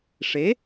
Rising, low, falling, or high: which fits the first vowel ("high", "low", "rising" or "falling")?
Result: rising